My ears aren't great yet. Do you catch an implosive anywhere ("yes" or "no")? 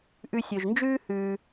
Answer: no